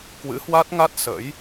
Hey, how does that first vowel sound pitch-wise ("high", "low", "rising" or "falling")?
rising